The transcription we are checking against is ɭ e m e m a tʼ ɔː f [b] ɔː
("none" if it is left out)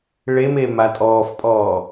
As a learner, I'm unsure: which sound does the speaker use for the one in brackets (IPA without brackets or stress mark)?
pʼ